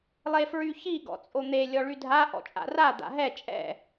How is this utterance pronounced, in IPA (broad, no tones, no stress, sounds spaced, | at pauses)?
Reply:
lˠ e f ɹ y ç i ɡ ɔ̰ t͡sʼ o n̪ e lʲ ɔ ɭ y dʱ a ʔ ɔ̰ t͡ʃʼ a̰ r a d̪ a̰ ɦ ɛ t͡ʃʼ ɛ̰